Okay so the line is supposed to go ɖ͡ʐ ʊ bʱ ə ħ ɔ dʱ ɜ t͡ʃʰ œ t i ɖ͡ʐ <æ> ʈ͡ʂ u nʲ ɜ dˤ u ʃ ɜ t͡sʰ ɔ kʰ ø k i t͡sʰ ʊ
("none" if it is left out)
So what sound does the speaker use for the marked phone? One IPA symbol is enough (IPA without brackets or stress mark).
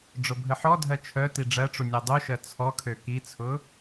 ɜ